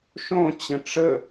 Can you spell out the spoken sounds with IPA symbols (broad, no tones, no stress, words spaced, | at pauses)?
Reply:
ʃõ t͡ɕə̃ʈ͡ʂə